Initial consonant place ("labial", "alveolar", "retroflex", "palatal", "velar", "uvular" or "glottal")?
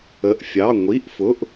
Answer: glottal